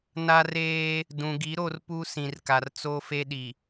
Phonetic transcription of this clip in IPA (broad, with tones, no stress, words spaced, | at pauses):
na˦reː˦ | dũ˨ɡi˨˦ ɾo˦rpu˦ sĩ˨rka˨r t͡soː˦fe˦ɗi˨